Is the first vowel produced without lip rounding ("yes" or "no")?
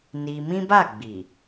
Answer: yes